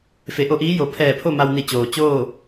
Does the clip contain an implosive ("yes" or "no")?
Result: no